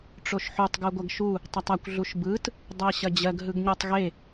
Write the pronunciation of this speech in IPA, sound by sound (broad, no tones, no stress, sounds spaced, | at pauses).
ʈ͡ʂ o ʃ ħ u tˤ ɡ u ɡʷ ɐ ɡ ʃ u | tˤ ɐ tˤ ɐ kʷ ɮ u ʃ b ɯ t | dˤ ɜ ɕ ɐ d͡ʑ ɜ ɡ ɦ ɯ ɡ ɲ o tˤ ɣ e